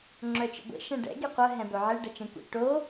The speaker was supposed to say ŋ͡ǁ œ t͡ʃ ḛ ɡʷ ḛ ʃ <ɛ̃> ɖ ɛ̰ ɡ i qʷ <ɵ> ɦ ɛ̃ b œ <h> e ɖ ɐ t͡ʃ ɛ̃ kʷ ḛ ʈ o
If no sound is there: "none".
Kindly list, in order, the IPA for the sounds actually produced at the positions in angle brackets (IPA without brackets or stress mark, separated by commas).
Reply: ɛ̃, œ, ʕ